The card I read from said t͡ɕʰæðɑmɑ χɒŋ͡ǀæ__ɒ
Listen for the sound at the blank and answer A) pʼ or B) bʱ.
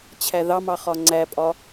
A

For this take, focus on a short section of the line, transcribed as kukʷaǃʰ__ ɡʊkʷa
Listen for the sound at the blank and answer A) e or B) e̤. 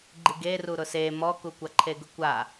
A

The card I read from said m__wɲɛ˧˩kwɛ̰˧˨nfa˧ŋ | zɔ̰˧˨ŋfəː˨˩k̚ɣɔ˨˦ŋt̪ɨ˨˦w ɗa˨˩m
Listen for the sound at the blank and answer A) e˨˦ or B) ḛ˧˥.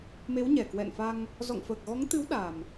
A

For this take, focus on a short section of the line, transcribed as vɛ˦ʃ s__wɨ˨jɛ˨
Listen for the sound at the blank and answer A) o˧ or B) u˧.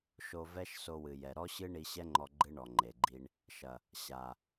A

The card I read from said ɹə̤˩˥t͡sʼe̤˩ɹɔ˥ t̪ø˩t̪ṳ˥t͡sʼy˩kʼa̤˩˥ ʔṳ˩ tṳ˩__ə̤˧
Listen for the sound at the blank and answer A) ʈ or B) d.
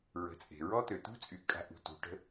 A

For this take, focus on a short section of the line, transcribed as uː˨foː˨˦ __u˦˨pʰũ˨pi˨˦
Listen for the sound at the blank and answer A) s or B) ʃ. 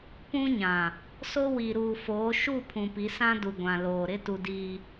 B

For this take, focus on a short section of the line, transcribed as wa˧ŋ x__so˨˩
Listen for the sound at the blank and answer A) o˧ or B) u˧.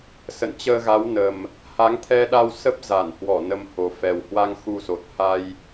B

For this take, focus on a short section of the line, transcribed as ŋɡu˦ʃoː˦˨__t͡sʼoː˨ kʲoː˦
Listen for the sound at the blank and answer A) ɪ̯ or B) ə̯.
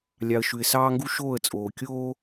B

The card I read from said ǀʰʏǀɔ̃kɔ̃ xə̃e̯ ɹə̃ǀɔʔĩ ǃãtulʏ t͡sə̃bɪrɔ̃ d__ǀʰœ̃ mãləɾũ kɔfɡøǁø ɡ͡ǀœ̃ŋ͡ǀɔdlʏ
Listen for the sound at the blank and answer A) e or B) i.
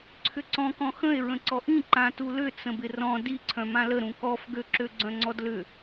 B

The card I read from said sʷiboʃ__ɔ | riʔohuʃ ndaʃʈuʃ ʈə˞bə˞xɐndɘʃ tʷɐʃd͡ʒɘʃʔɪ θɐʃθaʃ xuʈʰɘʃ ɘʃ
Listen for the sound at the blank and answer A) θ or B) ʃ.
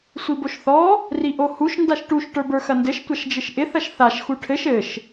A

